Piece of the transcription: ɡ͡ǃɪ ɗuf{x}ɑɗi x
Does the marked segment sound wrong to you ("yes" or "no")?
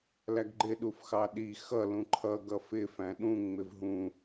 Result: no